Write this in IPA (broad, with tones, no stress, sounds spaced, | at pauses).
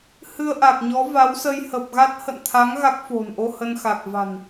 h ɨ˧ ə̯ ʔ a˨˩ k̚ ɲ ɔ˨˦ v a˨˦ w s ə˧ j h ə˨˩ p̚ ɣ a˦˥ t̚ h ə̰˧˨ n t̪ʰ a˨˦ ŋ ɣ a˦˥ k̚ f o̤˨˩ n ʔ o˧ h ə˧ n x a˨˩ k̚ v a̤˨˩ n